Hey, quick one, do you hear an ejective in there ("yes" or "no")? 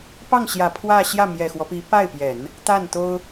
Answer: no